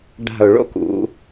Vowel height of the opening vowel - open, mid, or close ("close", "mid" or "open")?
open